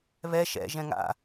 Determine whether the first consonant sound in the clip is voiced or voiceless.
voiced